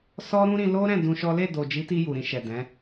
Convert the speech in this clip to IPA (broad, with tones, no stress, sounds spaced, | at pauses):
s ɔ˦ ɾ ũ˦ ɾ ĩ˧ l o˦ ɾ ɛ̃˦˨ d ũ˧ ʃ ɔ˦ l e˦˨ d o˨ d͡ʒ i˨˦ t i˧ j u˨ ɾ ĩ˧ ʃ ɛ˨ d ɛ̃˨˦